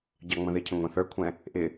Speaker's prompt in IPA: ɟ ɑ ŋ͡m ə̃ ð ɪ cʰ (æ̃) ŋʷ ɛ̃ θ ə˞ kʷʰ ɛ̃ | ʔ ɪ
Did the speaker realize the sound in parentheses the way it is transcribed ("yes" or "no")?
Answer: no